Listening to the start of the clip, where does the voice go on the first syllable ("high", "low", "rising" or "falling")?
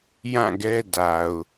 falling